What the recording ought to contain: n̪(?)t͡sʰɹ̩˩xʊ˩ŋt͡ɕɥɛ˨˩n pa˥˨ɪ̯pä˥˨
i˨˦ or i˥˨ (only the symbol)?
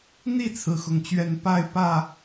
i˥˨